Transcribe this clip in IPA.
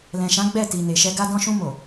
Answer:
l ɛ̃˨ ʃ ã˨˦ ɡ͡b ɛ˦˨ t i˨ n e˨ ʃ ɛ˧ ɡ a˧ d ɔ̃˧ ʃ ũ˧ m o˨

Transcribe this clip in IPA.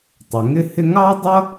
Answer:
tˤ ə˩ ŋ ɪ˥ h ɪ˥ ŋ ɑ˥ dˤ ʌ˥

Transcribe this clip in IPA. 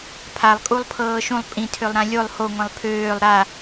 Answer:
pʰ a lˠ kʼ u lˠ pʰ ɤː ʃ ũ lˠ pʼ ĩ tʰ ø lˠ ɾ ã lʲ o lˠ h o ŋʷ ẽ lˠ pʰ øː lˠ ɾ a

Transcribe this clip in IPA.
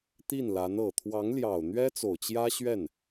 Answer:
t̪ i˥˩ n l a˧˥ n ɤ˨˩ t̪ʰ w ɑ˧˥ ŋ l j ɑ˨˩ ʊ̯ n̪ ɥ ɛ˥ t͡s o˨˩ ʊ̯ t͡ɕ j ä˥ ɕ ɥ ɛ˥˩ n

